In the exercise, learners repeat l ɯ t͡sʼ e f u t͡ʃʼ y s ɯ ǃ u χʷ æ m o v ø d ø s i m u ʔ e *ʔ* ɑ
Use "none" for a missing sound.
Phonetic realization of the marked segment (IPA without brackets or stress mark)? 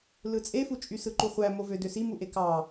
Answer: k